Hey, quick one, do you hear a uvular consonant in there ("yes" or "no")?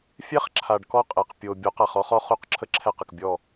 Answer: yes